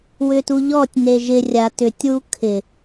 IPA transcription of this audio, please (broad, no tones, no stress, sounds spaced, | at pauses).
w ʏ t u ʎ ɔ tʲ n e ʒ ɪ rʲ a t ʏ tʲ w u kʰ ɪ